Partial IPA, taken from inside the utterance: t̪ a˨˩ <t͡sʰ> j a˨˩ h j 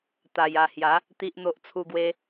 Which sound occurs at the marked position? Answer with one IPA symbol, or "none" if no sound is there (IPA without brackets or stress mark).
none